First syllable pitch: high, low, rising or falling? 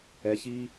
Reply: low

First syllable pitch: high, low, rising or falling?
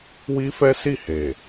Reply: high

